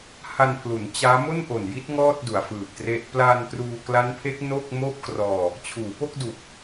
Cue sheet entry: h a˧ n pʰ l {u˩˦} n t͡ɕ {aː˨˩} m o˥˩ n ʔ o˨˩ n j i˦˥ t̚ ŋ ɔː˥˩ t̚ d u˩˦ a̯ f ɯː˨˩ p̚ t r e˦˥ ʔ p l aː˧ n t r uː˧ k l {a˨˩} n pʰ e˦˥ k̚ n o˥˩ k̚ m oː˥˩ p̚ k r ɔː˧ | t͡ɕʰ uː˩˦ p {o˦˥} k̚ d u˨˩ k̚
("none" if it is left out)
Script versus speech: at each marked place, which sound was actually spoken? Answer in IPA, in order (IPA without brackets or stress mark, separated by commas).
u˩˦, aː˦˥, a˦˥, o˥˩